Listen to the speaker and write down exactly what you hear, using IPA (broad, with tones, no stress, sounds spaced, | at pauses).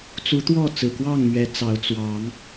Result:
t͡s u˨˦ t̪ w ɔ˥˨ t͡s ɹ̩˨˩ k w ɑ˥˨ ŋ m ɥ ɛ˨˦ t͡s ɑ˨˦ ʊ̯ t͡s w ɑ˨˦ ŋ